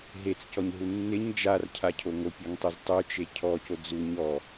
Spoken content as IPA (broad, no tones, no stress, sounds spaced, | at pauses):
ɦ e t͡s c ɔ ɲ ɦ u nː ɪ ɲ d͡ʒ a r cʰ a cʰ o ŋ o pʲ ɔ ŋ tˤ ɪ z tˤ u t͡ʃ e cʰ ɔ c o d͡z u ɲ ɔ